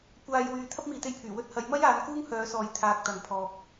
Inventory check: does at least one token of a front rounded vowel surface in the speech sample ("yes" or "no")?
yes